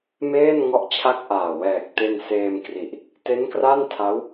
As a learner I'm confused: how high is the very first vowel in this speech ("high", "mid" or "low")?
mid